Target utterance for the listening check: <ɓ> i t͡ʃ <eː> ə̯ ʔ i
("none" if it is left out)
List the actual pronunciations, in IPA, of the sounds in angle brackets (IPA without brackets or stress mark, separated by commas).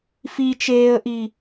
f, eː